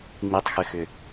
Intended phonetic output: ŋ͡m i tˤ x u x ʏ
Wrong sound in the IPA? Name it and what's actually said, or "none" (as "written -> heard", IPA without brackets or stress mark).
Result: u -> ʏ